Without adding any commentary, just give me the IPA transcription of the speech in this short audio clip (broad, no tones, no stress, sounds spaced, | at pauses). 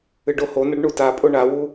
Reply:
ɨ ɖ o h o n ɐ ɖ ɳ u t a pʼ o ɳ a w u